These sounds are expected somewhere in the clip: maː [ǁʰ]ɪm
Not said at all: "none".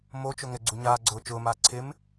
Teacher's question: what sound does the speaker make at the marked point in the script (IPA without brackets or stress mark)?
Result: ǀʰ